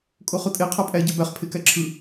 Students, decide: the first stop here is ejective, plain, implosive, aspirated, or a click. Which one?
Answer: ejective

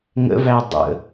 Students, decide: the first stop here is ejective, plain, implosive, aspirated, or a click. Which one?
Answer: plain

